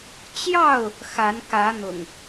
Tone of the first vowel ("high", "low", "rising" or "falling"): falling